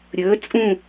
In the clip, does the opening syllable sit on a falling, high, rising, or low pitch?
rising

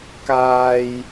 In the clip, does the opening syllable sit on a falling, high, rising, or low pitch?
high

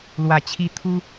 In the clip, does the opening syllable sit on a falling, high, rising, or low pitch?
low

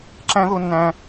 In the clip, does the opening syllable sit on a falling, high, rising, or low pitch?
high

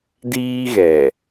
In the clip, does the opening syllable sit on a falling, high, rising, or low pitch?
high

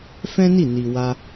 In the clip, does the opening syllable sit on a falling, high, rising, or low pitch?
high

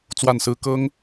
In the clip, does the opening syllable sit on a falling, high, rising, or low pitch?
falling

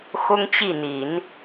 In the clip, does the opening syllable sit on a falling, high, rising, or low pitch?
high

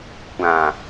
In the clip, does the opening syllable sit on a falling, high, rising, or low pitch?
low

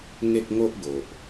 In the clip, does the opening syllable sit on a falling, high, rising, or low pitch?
high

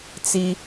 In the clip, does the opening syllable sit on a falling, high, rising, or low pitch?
high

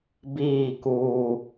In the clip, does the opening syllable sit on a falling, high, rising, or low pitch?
falling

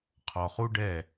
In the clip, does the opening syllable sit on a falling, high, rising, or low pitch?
low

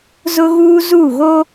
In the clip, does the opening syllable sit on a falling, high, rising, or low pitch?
high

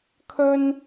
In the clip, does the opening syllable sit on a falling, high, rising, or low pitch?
high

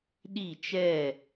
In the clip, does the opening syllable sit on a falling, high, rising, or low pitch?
falling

